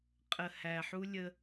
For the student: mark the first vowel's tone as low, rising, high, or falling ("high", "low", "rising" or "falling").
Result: low